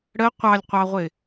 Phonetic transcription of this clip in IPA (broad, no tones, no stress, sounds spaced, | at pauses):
ɽ ə qʷ ɑ lʲ qʷ ɑ ʁʷ ɪ